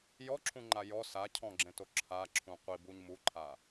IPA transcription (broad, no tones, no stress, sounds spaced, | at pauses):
j ɔ ǁʰ ũ ŋ͡ǃ a j ɔ s a cʰ ɔ̃ ɡ͡ǁ ẽ t o ǁʰ a ǁʰ ũ qʷ i b u ɲ m u ǃʰ a